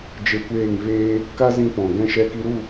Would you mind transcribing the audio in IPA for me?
d͡ʒ e˧ kʷ eː˦˨ ŋ v eː˧ | k a˦ z ĩ˧ p ɔ̃˨ ɡ ɛ̃˧ ʃ ɛ˧ k i˧ ɾ u˦˨

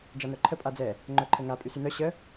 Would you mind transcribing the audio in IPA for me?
d͡ʒ a n œ ǃʰ ə pʼ a d͡z ɛ | ŋ͡ǃ œ ǃʰ ə ŋ a pʼ y s y n œ ɕ ə

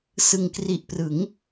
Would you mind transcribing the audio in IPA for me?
s ɯ˨˩ ŋ k r i˨˩ ʔ p r ɯ˩˦ ŋ

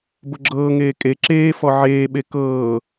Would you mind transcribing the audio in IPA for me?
b ʊ ɡ͡ǁ ɤː ŋ eː kʼ e ǁ eː f ɔ ʕ eː ɓ e k ɤː

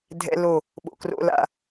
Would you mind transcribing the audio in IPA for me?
dʱ ɛ̰˦ l o˦˨ | ɓ o̰˨ k r o̰˦ l a̰˦

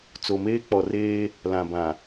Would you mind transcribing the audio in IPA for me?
t͡s o˨ m eː˦ k͡p ɔ˨ r eː˦ | l ã˨ b ã˨

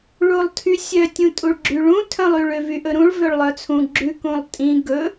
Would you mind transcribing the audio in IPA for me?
ɭ u lˠ tʰ y sʲ œ tʲ ũ tʼ u ɭ ɡ͡ǁ y ɭ ũ tʰ œ̃ lˠ y ɭ ø v y ʔ ɵ ɾ ũ ɭ v ø ɭ lˠ œ t͡sʰ ũ ɡ͡ǁ ʉ k ũ lˠ tʼ ĩ ɡ ɵ

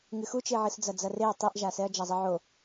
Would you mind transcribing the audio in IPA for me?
ŋ ɨ x u t͡ʃ e ʕ ɨ s d͡z ɐ d͡z ɐ r e ɐ̯ tˤ i ʔ ʒ a s ɛ ɐ̯ d͡ʒ a zˤ ɘ ʕ o

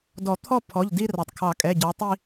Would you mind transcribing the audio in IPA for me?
d ɔ˨˩˦ t̪ʰ ɔ˥˧ pʰ ɔ˩˧˩ ʎ d i˥˧ r ɑ˩ tˤ kʰ ɑ˨˩˦ kʼ ɛ˩˧˩ ɟ ɑ˨˥ tˤ i˥˧

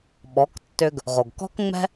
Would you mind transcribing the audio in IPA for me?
ɓ ɔ˩˥ k tː ʏ˧ ɡ | ʁ o˩ ɡ k ɔ̤˥ k ŋ͡m ɛ̤˥

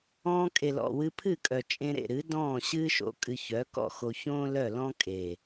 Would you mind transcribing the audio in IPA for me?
ɔ̃ː˧ kʼ e˨ l ɔ̰˨ w ɨ˧ pʰ ɨ˦˨ kʼ œ˨ t͡ʃʼ ẽ˧ ɾ ḛ˨ ɾ ɨ˨˦ d ɔ̃ː˦˨ ɕ ɨː˦ ʃ o̰˧ kʼ ɨ˧ ç œ˨˦ k ɔ̰˦˨ x o˧ ç õː˦ l œ˦˨ l ɔ̃ː˦ kʼ e˨

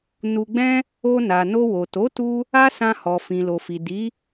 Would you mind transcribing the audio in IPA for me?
n u˧ ɡ͡b ɛ̃˦ | o˧ n a˨ n o˧ w o˨ t o˨˦ t u˧ | a˦ s ã˧ h ɔ˨ f ĩ˨ l o˨ f i˨ d i˨˦

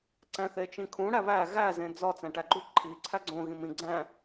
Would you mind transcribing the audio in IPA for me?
ǀ æ̃ θ e t͡ʃ ĩ kʰ ũ ɽ æ β æ ɣ æ z ẽ d͡z ɒ t͡s æ̃ ʈ æ ɡ͡ǃ u ǃʰ i ǀʰ æ ɡ͡ǀ õ ɣ ĩ m ĩ ɡ͡ǀ æ̃

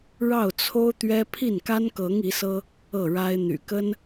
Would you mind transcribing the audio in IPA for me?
ɻ ɑ˥˩ ʊ̯ t͡sʰ o˥ ʊ̯ t̪ ɥ ɛ˥ pʰ i˥˩ n k a˥ n k ɤ˧˥ ŋ i˧˥ s ɤ˥ | ɤ˥˩ ɻ a˥ ɪ̯ n̪ y̰˨˩ k ə˥ n

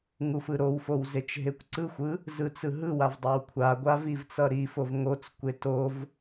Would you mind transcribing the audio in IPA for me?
ŋ u f ɯ ɾ o w f o w z e t͡ʃ ɦ e kʷ ǀ ɯ xʷ ɯ | z ɯ t͡s ɯ ɦ ɯ w a v dˤ ʌ w kʷʰ a ɡʷ a v i v t͡s ʌ ɾ i f o v ŋ o t͡s kʷ e t o v

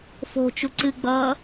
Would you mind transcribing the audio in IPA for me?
f o̤ t͡ʃ u ǀ ɨ ɡ͡b ʌː

